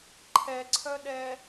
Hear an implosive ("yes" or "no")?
yes